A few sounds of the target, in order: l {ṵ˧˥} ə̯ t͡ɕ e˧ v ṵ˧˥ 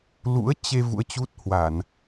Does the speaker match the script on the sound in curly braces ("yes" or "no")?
yes